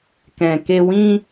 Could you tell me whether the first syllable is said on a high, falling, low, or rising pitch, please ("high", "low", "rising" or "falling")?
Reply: low